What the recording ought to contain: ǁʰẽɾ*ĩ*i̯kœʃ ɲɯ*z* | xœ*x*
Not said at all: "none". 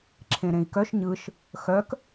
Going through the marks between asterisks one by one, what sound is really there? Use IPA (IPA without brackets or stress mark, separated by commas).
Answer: ẽ, ʃ, k